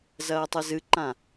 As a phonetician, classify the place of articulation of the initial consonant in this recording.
alveolar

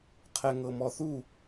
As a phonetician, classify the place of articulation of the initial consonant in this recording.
uvular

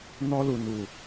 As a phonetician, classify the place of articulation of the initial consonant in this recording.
alveolar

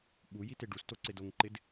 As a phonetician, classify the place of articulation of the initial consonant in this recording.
labial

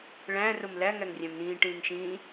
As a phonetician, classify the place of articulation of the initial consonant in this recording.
retroflex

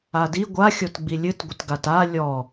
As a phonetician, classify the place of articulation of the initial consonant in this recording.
alveolar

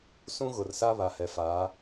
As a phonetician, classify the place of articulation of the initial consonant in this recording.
alveolar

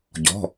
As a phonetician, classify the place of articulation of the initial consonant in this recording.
palatal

